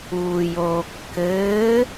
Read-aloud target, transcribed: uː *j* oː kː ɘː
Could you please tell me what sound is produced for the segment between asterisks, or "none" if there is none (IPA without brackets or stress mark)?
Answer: j